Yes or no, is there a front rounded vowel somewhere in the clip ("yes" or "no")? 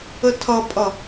no